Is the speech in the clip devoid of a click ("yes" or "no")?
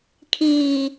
yes